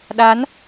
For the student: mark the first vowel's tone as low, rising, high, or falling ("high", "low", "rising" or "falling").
rising